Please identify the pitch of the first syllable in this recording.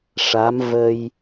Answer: rising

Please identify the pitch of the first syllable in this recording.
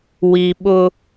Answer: low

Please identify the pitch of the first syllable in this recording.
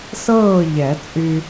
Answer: falling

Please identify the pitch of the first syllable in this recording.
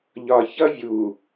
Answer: low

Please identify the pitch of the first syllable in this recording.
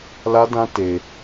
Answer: high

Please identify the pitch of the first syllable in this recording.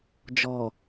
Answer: low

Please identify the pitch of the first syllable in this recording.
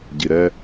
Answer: low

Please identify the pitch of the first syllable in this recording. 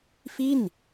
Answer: falling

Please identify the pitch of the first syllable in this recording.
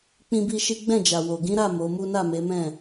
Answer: high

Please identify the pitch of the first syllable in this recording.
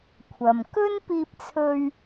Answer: low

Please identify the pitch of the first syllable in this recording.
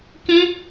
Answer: high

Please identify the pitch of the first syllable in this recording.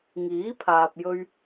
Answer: rising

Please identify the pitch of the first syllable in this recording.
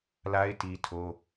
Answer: high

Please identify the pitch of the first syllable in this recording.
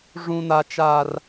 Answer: high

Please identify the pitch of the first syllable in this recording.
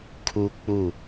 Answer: high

